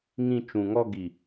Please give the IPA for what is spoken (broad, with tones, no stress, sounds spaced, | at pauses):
ŋ ĩ˧ t͡ʃ ũ˨ ŋ ɔ˧ ɡ i˨